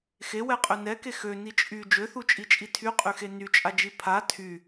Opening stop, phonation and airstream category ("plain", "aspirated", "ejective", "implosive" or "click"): ejective